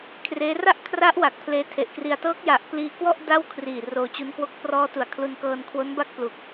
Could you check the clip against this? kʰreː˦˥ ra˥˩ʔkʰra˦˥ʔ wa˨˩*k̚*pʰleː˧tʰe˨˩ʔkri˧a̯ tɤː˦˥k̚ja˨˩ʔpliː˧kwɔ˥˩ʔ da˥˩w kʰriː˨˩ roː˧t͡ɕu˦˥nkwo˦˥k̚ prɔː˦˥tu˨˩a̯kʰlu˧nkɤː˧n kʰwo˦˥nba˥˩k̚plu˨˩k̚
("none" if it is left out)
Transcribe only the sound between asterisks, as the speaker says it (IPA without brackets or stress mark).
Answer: k̚